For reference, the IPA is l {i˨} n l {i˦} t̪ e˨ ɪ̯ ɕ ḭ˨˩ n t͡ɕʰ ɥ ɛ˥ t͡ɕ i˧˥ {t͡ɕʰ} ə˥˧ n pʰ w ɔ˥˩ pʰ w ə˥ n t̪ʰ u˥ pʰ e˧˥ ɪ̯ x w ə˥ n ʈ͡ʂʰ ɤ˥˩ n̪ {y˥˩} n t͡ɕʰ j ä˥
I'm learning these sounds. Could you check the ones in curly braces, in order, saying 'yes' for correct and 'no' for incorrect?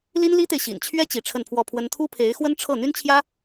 no, no, no, no

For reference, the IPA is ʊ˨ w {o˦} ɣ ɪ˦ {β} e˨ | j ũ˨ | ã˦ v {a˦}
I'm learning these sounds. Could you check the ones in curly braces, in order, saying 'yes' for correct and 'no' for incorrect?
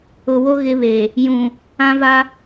yes, yes, yes

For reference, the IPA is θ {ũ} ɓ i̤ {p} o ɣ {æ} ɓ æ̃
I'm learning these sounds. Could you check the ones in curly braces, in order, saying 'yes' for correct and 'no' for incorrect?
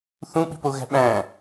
yes, yes, no

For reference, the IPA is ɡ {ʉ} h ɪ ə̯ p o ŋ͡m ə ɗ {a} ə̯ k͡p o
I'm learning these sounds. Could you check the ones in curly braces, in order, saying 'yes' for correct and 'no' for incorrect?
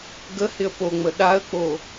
no, yes

